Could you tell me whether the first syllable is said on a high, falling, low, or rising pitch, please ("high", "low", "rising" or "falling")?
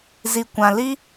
low